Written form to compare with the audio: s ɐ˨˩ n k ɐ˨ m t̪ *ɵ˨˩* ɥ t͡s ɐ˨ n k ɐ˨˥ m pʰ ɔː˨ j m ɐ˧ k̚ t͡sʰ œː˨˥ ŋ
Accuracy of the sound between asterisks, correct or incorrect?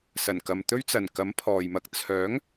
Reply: incorrect